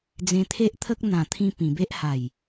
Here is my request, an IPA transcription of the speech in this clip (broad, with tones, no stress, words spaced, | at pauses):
d͡zẽ˧t̪ʰe˦ʔt̪ʰə˦k̚ n̪ã˨˩t̪ʰĩ˧ pĩ˨˩be˦ʔha˨˩j